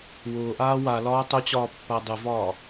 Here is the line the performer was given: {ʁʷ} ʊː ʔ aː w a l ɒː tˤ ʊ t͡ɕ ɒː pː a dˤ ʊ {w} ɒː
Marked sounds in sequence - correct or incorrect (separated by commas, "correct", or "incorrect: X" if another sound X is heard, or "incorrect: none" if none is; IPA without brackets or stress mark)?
incorrect: w, incorrect: v